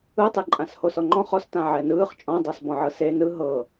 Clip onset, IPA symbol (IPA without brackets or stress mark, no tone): ɯ